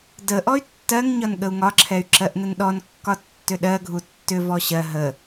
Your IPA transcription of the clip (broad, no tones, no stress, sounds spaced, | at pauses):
d ə ʔ ɔ y̯ tː ɜ ŋ ɲ ɒ n ɠ ə u̯ ŋ ɒ ǁʰ ɛ y̯ ǁ ɜ ʔ n ə n ɗ ɔ n kː ɒ tː ʏ ɗ ɜ ɡʱ u tː ʏ v ɔ ɕ ɜ ɦ ə